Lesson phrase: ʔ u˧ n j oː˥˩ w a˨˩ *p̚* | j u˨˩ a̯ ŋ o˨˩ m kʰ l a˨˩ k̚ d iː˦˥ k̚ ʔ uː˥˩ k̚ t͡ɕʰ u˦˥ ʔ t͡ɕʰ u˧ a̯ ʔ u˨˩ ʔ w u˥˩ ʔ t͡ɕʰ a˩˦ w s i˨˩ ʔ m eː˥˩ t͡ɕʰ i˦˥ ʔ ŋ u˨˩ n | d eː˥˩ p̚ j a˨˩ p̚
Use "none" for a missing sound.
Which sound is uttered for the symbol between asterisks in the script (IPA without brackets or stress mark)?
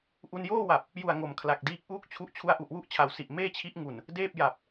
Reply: p̚